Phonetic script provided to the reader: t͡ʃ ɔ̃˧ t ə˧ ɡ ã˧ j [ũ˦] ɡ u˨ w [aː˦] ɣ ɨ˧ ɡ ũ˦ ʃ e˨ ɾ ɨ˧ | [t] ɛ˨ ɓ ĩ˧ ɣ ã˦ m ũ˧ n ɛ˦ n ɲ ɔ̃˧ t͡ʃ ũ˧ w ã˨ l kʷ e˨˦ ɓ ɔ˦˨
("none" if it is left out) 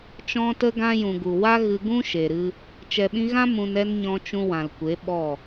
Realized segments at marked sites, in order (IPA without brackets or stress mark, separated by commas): ũ˨, a˦, t͡ʃ